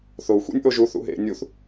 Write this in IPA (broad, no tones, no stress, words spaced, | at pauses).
θou̯ xʷḭnʲʔoʒu θṵɦḛ nʲuθ